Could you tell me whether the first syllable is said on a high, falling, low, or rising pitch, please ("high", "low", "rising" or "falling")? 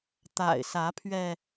low